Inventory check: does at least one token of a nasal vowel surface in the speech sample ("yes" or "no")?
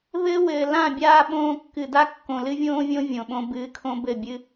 yes